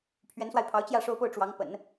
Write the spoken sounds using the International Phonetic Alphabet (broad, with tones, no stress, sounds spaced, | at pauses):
pʰ ɥ ɛ˧˥ n s w a˧ ɪ̯ pʰ ɑ˧˥ ʊ̯ t͡ɕ j ä˥˩ ʂ o˥ ʊ̯ p o˥˩ ʊ̯ ʈ͡ʂ w ɑ˧˥ ŋ p ə̰˨˩˦ n